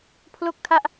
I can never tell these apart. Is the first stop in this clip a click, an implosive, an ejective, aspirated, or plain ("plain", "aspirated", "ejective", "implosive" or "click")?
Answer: aspirated